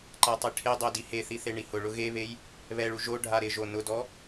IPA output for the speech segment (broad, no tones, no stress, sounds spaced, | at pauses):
ǃ a tˤ i ʈʰ e dˤ o d i h e θ i θ e ɳ i h ʊ ɭ ʊ ɣ e β e j | β ɛ ɭ u ʒ o ɖʱ a ɾ ɪ ʒ o n ʊ d ɔ